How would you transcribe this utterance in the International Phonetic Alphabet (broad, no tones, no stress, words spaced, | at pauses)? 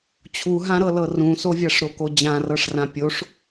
t͡ɕʰuɦãɾɤlɤ rũsovʲaʂɾo kod͡ʑãrɤʂrã pʲoʂ